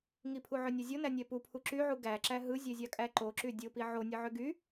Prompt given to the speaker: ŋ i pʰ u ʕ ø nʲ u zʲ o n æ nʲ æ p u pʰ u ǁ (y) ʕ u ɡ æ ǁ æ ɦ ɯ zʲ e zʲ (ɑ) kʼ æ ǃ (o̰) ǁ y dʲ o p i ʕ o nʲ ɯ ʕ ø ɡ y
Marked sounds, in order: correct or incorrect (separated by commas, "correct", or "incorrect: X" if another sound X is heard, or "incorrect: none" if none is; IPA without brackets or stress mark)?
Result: correct, correct, incorrect: o